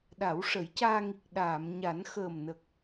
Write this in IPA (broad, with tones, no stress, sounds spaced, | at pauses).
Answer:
ɗ a˨˩˦ w ʂ ə˨˩˦ j c aː˧ ŋ i˨˩ k̚ ɗ aː˨˩˨ m ɲ a˨˩˦ n x əː˨˩ m n ə˨˩ k̚